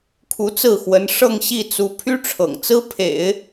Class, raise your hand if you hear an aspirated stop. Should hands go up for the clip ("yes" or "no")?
yes